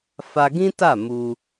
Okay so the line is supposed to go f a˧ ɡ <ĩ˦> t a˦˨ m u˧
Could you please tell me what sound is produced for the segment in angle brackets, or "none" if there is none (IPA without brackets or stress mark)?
ĩ˦